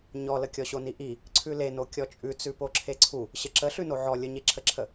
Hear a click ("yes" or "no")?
yes